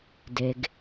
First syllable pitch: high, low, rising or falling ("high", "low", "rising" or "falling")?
low